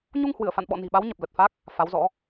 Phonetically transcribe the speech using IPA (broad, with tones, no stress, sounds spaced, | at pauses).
ɲ u˧ ŋ h w ɨ˧˩ ə̯ f a̰˧˨ n ɓ ɔ̰˧˨ n i̤˨˩ ɓ a˨˦ w ɲ ə˨˩ p̚ l ə˨˩ t̚ f a˦˥ k̚ | f a˨˦ w z ɔ̰˧˥